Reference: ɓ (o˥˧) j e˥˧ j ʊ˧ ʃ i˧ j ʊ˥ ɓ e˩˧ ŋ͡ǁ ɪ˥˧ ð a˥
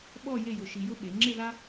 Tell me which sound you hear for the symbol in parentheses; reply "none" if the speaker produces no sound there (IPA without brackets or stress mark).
ɔ˥˧